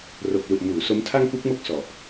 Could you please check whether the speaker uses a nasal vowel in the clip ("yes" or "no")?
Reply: no